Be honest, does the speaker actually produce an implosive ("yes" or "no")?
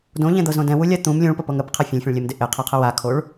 no